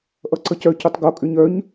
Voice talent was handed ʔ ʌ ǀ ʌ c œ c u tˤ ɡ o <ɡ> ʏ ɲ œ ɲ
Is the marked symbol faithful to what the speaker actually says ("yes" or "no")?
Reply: no